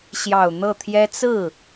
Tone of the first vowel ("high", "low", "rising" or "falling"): low